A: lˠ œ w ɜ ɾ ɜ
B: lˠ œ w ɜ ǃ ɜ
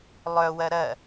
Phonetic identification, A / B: A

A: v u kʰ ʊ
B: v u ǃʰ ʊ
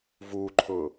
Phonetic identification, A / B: B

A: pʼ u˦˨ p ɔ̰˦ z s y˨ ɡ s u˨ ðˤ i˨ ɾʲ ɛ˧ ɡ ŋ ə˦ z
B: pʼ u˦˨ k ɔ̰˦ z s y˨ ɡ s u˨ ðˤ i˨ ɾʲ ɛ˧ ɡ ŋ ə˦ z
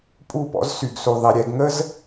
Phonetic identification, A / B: A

